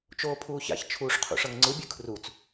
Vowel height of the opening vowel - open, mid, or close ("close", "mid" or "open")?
mid